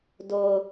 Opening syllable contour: low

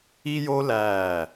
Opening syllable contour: high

